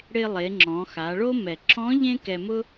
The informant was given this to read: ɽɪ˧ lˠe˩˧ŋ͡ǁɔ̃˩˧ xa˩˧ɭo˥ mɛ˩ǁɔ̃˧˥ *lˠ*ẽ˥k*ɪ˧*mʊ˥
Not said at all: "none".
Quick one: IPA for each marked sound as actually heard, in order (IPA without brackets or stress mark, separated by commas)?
ʎ, ɛ˧